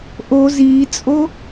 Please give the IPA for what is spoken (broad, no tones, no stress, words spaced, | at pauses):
ʔo ziːt͡sʼo